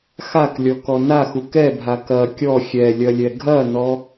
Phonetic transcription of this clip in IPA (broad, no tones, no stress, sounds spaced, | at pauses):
x a k lʲ ɔ k ɔ n a x u k ɛ bʱ a k ɐ kʲ ɔ xʲ ɛ lʲ ɐ lʲ ɛ ɡʱ ɐ n ɔ